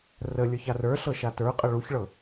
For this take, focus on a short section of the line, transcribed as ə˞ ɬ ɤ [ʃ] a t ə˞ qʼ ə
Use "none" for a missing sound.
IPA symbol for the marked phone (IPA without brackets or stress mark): ʃ